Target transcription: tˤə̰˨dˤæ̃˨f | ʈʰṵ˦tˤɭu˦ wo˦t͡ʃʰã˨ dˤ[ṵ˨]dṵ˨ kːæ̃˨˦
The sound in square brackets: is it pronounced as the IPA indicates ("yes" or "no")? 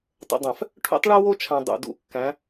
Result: yes